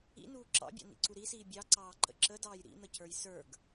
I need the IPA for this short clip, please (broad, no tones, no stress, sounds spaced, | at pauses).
ḭ n uː ǁ ɑ̰ bʲ ɑ̰ n ḭ ǀ u ɾ i s iː bʲ ɑ ǀ ɑː ǃ ə̰ ǁ ə d ɑː j ɾ ḭ n̪ ə c ə˞ j s ə˞ ɡ